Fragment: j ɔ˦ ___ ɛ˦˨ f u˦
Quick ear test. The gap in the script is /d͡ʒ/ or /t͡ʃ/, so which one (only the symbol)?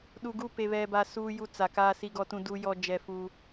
d͡ʒ